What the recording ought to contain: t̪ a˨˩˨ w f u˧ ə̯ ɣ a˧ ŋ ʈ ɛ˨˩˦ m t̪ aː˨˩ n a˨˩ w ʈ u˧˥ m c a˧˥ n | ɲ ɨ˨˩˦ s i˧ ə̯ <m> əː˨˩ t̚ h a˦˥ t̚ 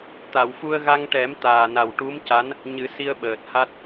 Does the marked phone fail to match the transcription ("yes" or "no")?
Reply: yes